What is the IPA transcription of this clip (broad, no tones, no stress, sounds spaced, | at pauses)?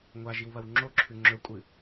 ŋʷ a ʒ i w β ɐ w ŋ͡ǁ o ǁʰ ʉ ŋ͡ǁ ɵ kʷʼ ɨ